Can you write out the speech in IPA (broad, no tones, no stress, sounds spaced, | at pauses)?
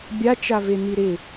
bʲ a t͡ʃ a v e n i ɾ ɪ